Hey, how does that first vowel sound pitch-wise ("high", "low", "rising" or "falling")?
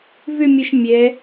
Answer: falling